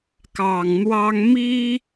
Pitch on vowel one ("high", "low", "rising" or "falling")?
low